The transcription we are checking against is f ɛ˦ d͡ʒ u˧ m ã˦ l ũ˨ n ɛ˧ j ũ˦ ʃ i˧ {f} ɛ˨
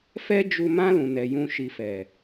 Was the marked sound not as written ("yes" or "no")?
no